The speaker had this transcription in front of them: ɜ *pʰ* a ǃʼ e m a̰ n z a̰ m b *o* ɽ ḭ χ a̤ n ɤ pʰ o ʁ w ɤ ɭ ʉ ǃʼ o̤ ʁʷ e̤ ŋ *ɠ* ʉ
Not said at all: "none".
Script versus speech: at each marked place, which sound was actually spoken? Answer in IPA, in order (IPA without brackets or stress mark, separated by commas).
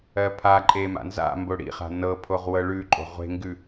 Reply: pʰ, o, ɡ